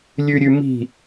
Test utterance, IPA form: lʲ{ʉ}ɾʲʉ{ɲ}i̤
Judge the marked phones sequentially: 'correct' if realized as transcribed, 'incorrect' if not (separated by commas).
correct, incorrect